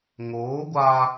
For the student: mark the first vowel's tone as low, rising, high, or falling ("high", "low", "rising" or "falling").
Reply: rising